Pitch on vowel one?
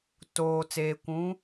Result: low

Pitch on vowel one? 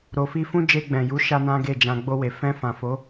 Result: low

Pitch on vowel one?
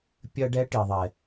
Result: high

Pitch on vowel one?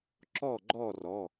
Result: falling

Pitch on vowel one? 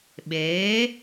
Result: rising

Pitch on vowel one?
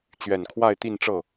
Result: low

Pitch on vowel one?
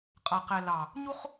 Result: low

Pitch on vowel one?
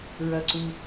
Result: low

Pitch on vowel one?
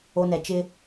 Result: high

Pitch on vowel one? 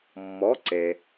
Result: rising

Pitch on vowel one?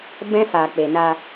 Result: high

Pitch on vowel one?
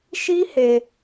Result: high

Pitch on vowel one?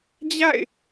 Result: falling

